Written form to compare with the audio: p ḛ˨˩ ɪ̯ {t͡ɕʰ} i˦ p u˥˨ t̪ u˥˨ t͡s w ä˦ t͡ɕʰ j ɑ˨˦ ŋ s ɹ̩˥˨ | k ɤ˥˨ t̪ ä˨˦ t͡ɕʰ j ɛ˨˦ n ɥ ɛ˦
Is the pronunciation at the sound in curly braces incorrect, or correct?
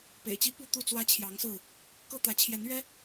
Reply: incorrect